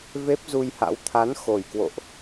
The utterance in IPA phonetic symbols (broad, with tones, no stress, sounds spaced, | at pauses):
v e˦˥ p̚ z u˧ j h a̰˧˥ w t̪ʰ a˨˦ n x o˨˩ j k w o̰˧˨ ʔ